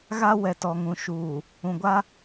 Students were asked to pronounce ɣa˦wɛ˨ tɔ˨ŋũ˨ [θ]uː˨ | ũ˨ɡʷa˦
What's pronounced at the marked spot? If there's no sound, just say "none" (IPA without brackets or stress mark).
ʃ